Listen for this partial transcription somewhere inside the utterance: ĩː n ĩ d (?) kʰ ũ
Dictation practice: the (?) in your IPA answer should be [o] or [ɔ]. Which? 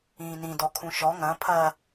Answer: ɔ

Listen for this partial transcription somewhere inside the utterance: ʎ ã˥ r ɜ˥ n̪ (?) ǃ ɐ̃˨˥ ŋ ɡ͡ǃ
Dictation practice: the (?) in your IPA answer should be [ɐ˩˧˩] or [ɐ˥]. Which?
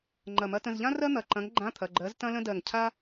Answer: ɐ˩˧˩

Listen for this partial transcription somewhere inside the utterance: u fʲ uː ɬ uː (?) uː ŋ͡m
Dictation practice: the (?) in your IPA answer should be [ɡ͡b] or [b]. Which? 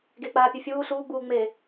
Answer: ɡ͡b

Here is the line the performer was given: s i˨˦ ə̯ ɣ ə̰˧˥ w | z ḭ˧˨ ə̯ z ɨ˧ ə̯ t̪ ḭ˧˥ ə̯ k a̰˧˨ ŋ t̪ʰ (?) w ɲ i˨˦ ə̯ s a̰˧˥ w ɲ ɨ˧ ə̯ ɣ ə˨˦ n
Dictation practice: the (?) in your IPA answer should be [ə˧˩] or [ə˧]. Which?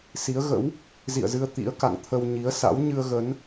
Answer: ə˧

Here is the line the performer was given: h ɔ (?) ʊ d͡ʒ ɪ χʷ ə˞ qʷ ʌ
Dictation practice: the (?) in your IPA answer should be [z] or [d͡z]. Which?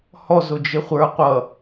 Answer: z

